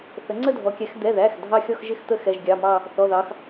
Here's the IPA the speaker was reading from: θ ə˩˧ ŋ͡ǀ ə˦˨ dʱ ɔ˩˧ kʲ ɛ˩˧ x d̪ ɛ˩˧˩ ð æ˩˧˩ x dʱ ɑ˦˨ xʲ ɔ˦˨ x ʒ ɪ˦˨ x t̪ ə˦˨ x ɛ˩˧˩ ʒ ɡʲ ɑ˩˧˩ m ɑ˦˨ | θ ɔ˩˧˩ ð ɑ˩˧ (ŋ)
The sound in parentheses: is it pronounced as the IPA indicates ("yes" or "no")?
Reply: no